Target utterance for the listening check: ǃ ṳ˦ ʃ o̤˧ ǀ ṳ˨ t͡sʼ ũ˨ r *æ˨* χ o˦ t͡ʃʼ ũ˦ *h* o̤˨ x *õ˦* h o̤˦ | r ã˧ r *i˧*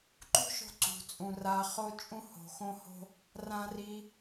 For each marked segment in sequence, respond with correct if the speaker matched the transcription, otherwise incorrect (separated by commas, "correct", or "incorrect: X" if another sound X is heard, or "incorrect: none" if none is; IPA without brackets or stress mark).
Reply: incorrect: a˨, correct, correct, correct